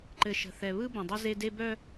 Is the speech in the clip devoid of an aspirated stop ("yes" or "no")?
yes